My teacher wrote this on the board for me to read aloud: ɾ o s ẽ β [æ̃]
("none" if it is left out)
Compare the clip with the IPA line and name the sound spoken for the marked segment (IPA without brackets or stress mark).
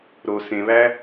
æ